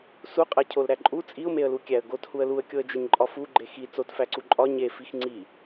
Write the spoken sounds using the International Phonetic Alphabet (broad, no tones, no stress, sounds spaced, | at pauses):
s u qʼ æ cʰ o l ɾ æ ǃʼ u t͡sʼ i ʊ̯ m e ə̯ l u kʲ æ ə̯ ɡ o t h u ə̯ l u ə̯ kʲ o ə̯ d͡ʒ e ɲ ǃʼ ɒ f u ɡ͡ǃ e x i t͡s o t f æ ǀ u ǃʼ ɒ ɲ e f i x ŋ͡ǀ i